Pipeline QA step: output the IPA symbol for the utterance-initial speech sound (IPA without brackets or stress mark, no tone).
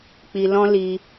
k͡p